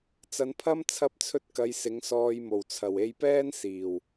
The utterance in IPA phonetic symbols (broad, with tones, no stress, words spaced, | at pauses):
t͡sɐ˨˧npʰɐ˥m t͡sʰɐ˥p̚t͡sʰɵ˥t̚ kɐ˨˧j sɪ˨˥ŋsɔː˧j mo˨˩wt͡sʰɐ˨˩we˧jpɛː˥n siː˨˩w